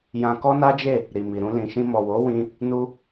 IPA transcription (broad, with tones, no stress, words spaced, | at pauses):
jã˧kɔ˦na˦d͡ʒe˦˨ | ɾi˨mi˨ ɾũ˧lĩ˨ʃĩ˧ mɔ˨wo˨˦wĩ˧ | nu˧